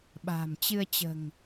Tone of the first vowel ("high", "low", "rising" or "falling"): low